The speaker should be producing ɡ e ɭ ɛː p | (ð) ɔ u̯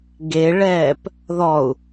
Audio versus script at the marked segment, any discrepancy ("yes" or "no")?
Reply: no